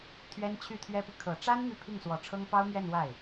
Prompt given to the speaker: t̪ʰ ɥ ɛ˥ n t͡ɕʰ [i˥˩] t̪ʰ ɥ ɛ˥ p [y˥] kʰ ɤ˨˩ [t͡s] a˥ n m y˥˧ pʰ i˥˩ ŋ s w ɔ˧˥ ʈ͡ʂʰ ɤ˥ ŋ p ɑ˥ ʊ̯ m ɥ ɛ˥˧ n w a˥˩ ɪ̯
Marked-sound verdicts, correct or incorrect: incorrect: y˥˩, incorrect: y˨, incorrect: ʈ͡ʂ

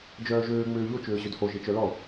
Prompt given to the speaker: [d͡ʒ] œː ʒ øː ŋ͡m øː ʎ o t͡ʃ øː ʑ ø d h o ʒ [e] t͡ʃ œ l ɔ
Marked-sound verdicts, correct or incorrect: correct, correct

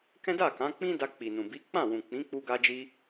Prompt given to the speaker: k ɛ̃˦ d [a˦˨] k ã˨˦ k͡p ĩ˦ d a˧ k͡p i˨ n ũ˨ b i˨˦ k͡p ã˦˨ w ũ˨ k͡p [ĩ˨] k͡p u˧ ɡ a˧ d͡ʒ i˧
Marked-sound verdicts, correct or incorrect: correct, incorrect: ĩ˨˦

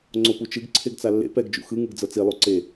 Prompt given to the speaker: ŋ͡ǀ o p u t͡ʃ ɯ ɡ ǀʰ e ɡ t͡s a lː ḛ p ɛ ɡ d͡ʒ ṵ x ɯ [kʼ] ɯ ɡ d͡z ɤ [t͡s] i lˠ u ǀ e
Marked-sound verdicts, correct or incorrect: incorrect: ŋ, correct

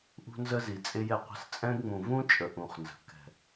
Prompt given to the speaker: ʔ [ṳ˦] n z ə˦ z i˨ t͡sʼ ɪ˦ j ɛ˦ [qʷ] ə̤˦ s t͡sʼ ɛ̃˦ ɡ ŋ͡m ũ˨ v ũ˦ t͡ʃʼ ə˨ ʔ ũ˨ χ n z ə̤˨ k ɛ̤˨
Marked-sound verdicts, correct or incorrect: correct, correct

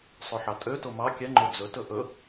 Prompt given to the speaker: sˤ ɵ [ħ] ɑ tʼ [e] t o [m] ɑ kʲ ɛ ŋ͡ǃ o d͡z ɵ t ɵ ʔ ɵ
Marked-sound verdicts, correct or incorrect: correct, incorrect: ø, correct

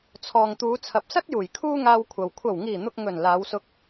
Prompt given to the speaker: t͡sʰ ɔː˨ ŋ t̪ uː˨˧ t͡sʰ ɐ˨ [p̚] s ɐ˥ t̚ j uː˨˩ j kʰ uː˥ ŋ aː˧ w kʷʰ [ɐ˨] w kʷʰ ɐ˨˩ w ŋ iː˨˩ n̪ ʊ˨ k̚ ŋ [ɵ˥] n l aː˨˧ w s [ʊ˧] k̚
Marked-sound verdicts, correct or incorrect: correct, correct, incorrect: ɵ˨˩, correct

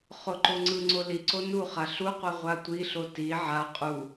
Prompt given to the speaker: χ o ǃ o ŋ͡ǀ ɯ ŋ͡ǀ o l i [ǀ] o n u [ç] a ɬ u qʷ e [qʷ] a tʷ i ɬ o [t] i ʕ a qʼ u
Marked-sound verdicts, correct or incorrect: correct, incorrect: χ, incorrect: ʁʷ, correct

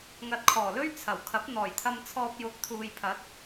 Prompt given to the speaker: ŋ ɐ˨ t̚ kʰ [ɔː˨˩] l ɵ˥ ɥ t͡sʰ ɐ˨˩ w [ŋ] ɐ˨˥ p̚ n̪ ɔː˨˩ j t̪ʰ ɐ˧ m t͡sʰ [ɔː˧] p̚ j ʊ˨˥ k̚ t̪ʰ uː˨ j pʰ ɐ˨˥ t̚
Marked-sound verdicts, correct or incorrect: correct, incorrect: kʰ, correct

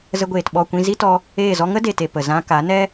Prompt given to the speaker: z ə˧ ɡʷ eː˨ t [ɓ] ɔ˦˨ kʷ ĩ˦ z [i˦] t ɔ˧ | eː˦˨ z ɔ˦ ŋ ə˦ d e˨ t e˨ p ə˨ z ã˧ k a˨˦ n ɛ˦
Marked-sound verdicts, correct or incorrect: correct, correct

